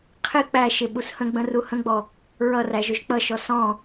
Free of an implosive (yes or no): no